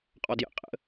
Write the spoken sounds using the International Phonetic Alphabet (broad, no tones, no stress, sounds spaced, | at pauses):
qʼ ɔ d j ə̰ qʼ ə̰